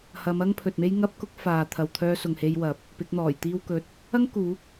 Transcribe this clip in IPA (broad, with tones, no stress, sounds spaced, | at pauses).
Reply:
h ɐ˨˧ m ɐ˥ ŋ pʰ ɵ˨ t̚ m e˥ j ŋ ɐ˥ p̚ k ʊ˥ k̚ f aː˨ t̪ʰ ɐ˨ w t̪ʰ œː˧ s ʊ˨ ŋ h e˧ j w ɐ˨˥ p̚ | p ɪ˨˥ k̚ n̪ ɔː˨˩ j t̪ iː˥ w k ɵ˨ t̚ | ɐ˥ ŋ k uː˨˥ k̚